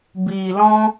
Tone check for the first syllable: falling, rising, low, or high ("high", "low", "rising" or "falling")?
low